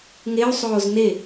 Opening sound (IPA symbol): ŋ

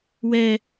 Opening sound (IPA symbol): w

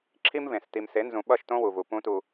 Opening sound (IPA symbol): ǁʰ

